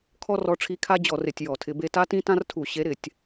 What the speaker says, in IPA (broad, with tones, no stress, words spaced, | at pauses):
kʰɔ˦rɔ˨˦ʈ͡ʂʰi˨˦ kʰa˦d͡ʑɔ˧˩˧r ɪ˧˩˧tʲjɔ˧˩˧tʰɪ˨˦be˦ ta˦tĩ˦tã˦r tʰu˧˩˧ɕe˨˦ ɾɪ˧˩˧tʲ